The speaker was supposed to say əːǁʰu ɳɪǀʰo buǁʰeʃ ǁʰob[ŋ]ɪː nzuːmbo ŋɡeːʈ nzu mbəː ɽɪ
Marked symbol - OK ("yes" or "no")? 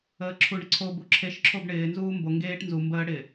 no